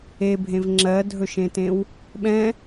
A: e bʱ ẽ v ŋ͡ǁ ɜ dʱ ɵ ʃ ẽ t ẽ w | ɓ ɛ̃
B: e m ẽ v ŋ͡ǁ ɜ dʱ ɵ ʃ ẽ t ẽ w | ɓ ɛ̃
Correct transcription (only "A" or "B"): A